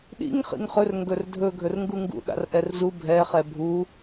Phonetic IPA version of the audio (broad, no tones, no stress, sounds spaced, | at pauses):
ɗ ḭ ŋ χ ḭ ŋ χ ɵ r ŋ ɡ ɵ r dʱ ɵ ɡʱ ɵ r ŋ ɡ u ŋ ɡ ṵ ɗ a̰ r ʔ ɛ r z u bʱ ɛ χ ɛ bʱ u